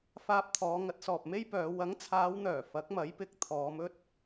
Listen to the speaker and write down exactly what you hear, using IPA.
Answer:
f aː˧ p̚ t̪ʰ ɔː˨˧ ŋ ɐ˨˥ t̚ s ɔː˨ p̚ m e˥ j p œː˨˧ w ɐ˨˥ ŋ t͡sʰ aː˨˧ w n̪ œː˨˩ f ɐ˨˥ k̚ m ɐ˨˥ j p ɪ˨˥ k̚ t̪ʰ ɔː˨˧ m ɵ˥ t̚

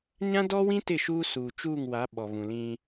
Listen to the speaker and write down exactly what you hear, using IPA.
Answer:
ɲ ã˦ d ɔ˦ w ĩ˦ t ɪ˦˨ ʃ uː˦ s uː˨ t͡ʃ uː˦˨ ŋ w a˨˦ ɓ ɔ˨ β ũ˨ l ĩ˦

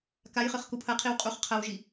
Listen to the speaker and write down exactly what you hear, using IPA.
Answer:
k a j χ ɨ χ k u pʰ ɐ qʰ i w qʼ u χ qʰ ɐ w ʒ i

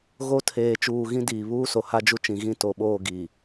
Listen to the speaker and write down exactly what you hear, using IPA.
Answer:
ɣ o˦ tʰ eː˨ t͡ʃ uː˨ ɣ ĩ˦ d iː˨ β uː˦ s o˨ h a˦ d͡ʒ u˦ t͡ʃ ĩ˨ ɣ ĩ˦ t o˨ ɓ oː˦˨ ɡ i˨

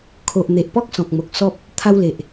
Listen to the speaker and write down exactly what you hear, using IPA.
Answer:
kʰ o˨ ʔ n̪ e˨ ʔ p ɔ˦ k̚ s ɔ̃˨ k̚ m o˨ k̚ s ɔ˦ p̚ | t̪ʰ a˦ w l e˨ ʔ

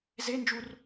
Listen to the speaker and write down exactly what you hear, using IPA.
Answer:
z e n d͡ʒ u r

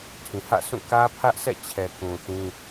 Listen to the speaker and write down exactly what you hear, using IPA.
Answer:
tʰ ĩ˨ h ä̰˦˨ sʰ ũ˦˨ k ä˦ pʰ ä˦ ʔ s ɛ̰˦˨ t͡ɕʰ ɛ˨ k ũ˨ θ ĩ˦

